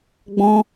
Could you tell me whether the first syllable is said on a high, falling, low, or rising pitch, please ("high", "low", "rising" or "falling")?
high